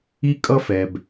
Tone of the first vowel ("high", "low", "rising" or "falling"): high